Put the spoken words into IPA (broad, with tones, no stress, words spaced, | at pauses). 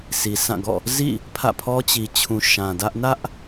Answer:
si˨sã˦˨ɡɔ̰˦˨ | zḭ˦˨ | pʰä̰˦˨pʰɔ˦t͡ɕi˨t͡ɕʰũ˨ ʃã˨dä˦ʔ nä˦ʔ